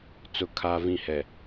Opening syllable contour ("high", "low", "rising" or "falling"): low